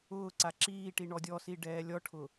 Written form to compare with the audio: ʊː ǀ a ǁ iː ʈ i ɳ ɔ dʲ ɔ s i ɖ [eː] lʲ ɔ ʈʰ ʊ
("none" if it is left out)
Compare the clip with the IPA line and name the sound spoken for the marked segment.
ɛː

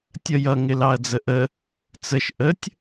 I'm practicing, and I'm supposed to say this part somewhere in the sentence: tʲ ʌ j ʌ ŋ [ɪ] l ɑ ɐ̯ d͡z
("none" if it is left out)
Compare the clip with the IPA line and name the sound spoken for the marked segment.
ɪ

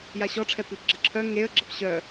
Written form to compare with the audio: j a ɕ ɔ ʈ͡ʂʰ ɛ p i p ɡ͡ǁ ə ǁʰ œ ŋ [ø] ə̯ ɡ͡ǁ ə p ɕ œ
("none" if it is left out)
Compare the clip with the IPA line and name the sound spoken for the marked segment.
e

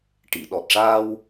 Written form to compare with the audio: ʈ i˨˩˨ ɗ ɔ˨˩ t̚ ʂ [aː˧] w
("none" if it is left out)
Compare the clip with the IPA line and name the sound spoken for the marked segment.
aː˧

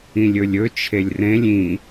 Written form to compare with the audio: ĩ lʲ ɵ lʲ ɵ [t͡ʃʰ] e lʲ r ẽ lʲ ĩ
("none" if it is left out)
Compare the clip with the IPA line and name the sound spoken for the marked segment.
t͡ʃʰ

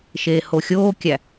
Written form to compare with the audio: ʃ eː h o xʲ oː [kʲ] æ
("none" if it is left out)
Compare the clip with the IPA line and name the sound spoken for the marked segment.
kʲ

